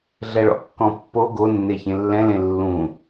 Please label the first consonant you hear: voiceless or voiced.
voiced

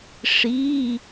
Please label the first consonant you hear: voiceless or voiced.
voiceless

